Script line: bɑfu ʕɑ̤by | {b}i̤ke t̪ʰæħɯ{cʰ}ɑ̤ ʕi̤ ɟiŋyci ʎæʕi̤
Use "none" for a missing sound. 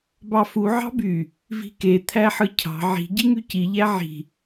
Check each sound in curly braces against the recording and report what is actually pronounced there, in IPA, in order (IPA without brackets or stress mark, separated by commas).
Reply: v, cʰ